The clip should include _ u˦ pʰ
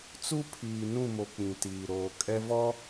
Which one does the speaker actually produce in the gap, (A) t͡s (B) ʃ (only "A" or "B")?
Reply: A